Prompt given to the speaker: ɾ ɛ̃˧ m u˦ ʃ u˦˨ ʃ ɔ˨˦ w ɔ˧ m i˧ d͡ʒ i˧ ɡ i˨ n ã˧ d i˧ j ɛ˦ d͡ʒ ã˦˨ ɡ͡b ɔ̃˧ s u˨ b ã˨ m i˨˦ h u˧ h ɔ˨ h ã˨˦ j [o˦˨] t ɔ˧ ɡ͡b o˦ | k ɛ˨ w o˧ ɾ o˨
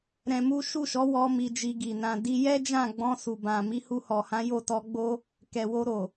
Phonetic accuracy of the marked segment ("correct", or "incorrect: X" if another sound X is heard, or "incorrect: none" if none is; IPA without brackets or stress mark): correct